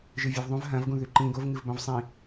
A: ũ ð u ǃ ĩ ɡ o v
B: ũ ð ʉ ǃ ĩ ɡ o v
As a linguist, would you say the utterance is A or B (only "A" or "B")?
B